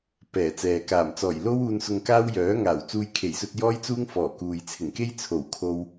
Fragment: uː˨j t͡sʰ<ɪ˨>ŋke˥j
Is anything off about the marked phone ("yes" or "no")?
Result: yes